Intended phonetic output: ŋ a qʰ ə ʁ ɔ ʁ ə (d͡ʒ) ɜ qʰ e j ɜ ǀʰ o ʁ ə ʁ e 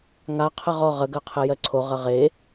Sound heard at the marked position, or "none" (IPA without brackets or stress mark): ɡ